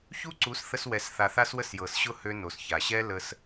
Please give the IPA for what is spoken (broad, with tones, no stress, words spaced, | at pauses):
çu˦ǀu˨˦s θə˧swɛ˨sθa˨ θa˦swə˦sjɤ˨sɕʊ˦ hø˦no˨sça˨ ɕɛ˦ lə˧s